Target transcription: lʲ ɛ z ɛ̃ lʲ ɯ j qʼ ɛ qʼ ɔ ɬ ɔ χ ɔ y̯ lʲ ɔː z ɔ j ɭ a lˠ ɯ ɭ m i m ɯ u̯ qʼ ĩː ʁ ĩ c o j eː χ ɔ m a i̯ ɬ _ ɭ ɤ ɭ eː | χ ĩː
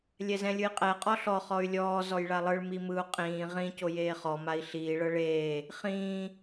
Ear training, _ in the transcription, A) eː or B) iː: B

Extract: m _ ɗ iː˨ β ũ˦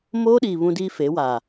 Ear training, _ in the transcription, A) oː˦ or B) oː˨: A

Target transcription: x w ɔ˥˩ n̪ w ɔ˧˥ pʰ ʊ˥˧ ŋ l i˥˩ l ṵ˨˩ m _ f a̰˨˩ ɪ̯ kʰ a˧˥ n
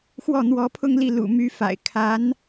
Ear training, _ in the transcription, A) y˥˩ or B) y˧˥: B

